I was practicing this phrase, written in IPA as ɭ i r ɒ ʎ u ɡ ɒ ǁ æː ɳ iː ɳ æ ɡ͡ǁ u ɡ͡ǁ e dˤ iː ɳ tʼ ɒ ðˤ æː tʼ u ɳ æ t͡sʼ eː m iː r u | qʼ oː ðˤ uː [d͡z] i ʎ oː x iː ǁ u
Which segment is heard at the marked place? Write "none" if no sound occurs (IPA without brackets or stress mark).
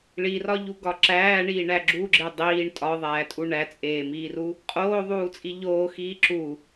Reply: t͡sʼ